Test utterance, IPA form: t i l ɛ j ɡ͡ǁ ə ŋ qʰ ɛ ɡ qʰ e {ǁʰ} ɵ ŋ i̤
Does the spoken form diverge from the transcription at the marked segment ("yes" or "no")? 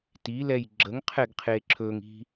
no